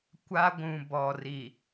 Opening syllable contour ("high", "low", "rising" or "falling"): high